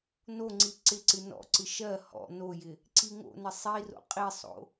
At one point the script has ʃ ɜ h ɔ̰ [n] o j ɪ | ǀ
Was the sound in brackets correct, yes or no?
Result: yes